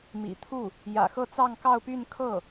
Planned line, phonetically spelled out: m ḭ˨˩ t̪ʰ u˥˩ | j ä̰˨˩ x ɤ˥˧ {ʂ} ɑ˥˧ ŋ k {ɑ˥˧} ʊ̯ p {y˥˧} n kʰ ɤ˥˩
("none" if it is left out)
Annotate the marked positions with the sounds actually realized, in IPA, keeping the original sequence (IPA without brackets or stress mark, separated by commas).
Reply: t͡s, ɑ˥˧, y˥˧